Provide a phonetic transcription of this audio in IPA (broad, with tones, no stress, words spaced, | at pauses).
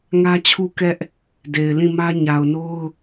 ŋä˦t͡ɕʰu˦ kɛ˦ʔ | de˨ɪ̯lĩ˦˨mä˦ ɲa˨ʊ̯no˦ʊ̯